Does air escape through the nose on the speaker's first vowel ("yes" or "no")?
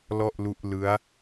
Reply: no